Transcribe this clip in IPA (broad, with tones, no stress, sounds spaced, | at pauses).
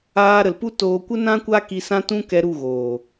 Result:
aː˧ ɾ ə˨ l p u˦ t oː˧ kʷ ə˦ n ã˦ kʷ a˦ k i˧ s ã˦ t ũ˦ k ɛ˧ ɾ u˦˨ ɣ oː˨